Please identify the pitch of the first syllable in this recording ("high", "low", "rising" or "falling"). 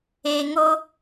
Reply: low